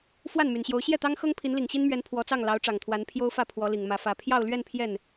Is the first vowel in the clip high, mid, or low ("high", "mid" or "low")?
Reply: low